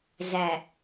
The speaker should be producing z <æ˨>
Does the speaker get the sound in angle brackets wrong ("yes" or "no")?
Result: no